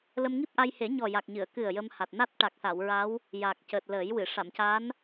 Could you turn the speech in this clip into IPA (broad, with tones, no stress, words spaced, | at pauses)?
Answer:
lə˧mŋi˦˥p̚ʔa˧jhe˨˩˦ ɲɔ˨˩ja˨˩k̚ɲɨ˨˩˨ə̯ kɨ˨˩ə̯ jə˧mha˨˩t̚ na˦˥t̚ʈa˨˩k̚sa˨˩˨w ɹa˧˥w | ja˨˩k̚cəː˨˩t̚ ləː˨˩˦jwɨ˨˩˨ ʂa˨˩˨mca˧˥n